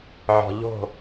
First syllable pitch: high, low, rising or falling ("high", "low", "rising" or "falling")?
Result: low